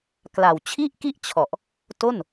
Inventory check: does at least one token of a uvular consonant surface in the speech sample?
no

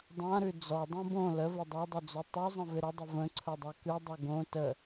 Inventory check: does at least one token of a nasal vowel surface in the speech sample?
yes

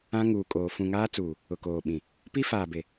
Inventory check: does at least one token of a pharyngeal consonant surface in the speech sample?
no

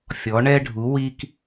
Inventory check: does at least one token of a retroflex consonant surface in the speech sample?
yes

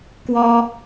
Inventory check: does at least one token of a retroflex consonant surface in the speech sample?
no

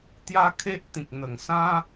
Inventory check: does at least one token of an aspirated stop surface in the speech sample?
yes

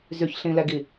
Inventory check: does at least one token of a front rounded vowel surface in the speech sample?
yes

